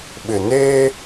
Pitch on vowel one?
low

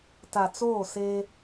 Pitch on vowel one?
low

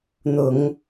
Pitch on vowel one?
low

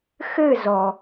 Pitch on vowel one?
falling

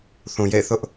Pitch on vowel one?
low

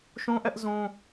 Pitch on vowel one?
high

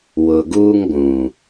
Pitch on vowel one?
low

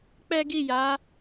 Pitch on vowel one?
high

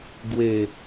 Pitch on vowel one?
low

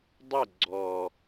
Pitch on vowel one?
falling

